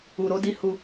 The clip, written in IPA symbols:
u˧ ɾ o˦ d i˦ h u˧

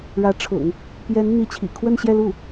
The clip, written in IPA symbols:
ɻ ä˧˥ ʈ͡ʂʰ ʊ̰˨˩˦ ŋ | p j ɛ˧˥ n n̪ i˧˥ t͡ɕʰ ḭ˨˩ kʰ w ə˥˧ n ɕ j ɛ˥˧ l u˥˩

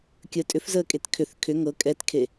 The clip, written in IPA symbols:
kʲ ə tʼ ʏ f z əː kʼ e t kʰ ʏ θ kʰ ʏ ŋ ɤ kʼ ɛ t kʰ e

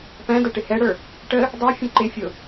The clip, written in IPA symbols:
p æ̃ d ʌ ʈ ɪ h ɛ ɽ ə˞ | ʈ ə | dˤ æ fʲ ə̃ ǃ ɪ fʲ ʊ

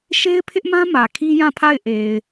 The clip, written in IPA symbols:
ʃ e˦ ɪ̯ pʰ ɪ˦ ʔ m ã˦ m ä˨ kʰ i˦ j ã˦˨ pʰ a˦˨ ɪ̯ ʔ e˨ ɪ̯

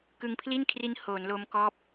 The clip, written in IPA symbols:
k ɯ˧ ŋ pʰ l i˥˩ n kʰ r i˦˥ n h oː˩˦ n l o˦˥ m k ɔː˦˥ p̚

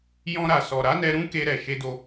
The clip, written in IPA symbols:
j ɔ̃˧ ɾ a˨ s ɔ˨ ɾ a˨˦ n ɛ˧ ɾ ũ˦ k e˧ ɾ ɛ˨ ʃ e˧ d o˧

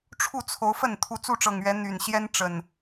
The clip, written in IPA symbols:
ʈ͡ʂʰ u˥˨ t͡sʰ o˨˦ ʊ̯ f ə˥˨ n t̪ʰ u˨˦ t͡s u˥˨ ʈ͡ʂ ɤ˨˩ ŋ ɥ ɛ˨˦ n̪ y˨˩ n ɕ j ɛ˦ n ʈ͡ʂ ə˨˩ n

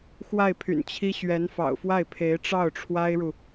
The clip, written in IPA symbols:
x w a˥˩ ɪ̯ pʰ y̰˨˩ n t͡ɕʰ i˥ ɕ ɥ ɛ˧˥ n f ɑ̰˨˩ ʊ̯ f w a˥˩ ɪ̯ pʰ e˧˥ ɪ̯ ʈ͡ʂ ɑ˥˩ ʊ̯ ʈ͡ʂʰ w a˥ ɪ̯ ɻ u˨

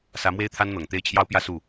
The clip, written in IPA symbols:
s ä˧˥ m w e˥ ɪ̯ t̪ʰ a˥ n n̪ ɤ˨˩ ŋ t̪ e˥˩ ɪ̯ t͡ɕʰ j ɑ˥ ʊ̯ p j ä˥ s u˥˩

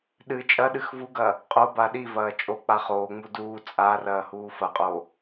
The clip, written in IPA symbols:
ɗ ɨ t͡ʃʼ ɐ ɗ ɨ x v u ɡ ɐː | qʼ o b a ɗ i v ɐː t͡ʃʼ o k͡p a χ oː ŋ͡m u d uː t͡sʼ a r ɐː h uː f ɐ qʼ oː

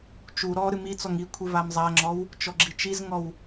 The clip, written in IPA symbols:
t͡ʃ u ɾ ɔ ɾ ɨ m i t͡s ɔ ŋ i kʷʰ ɨ v a m zˤ a ŋ͡ǁ ɔ w | t͡ʃ ɔ ɡ͡ǁ i t͡ʃ i z ŋ ɔ w

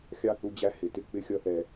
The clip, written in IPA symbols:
xʲ ɑ˦ θ u˧ d͡ʑ æ˦ h ɪ˨ t ɪ˧ k͡p ɪ˦ xʲ ʌ˦ θ ɛ˧

